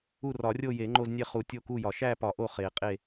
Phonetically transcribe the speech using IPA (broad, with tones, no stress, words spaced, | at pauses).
u˦˨rɒ˨˩˦rʲo˦˨je˨˩˦ ŋ͡ǃo˦˨znʲe˦˨χu˨˩˦ tʲo˦˨ku˦˨jɒ˨˩˦ ʃæ˦˨pɒ˨˩˦ ʔo˦˨χe˨˩˦qʼe˦˨